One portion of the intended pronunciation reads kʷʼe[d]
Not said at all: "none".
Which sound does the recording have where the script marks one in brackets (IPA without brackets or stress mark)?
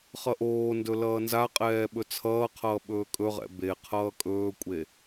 none